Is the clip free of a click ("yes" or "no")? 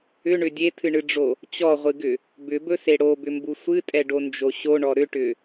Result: yes